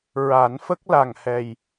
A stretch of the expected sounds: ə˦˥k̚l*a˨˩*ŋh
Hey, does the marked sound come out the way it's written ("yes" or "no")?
yes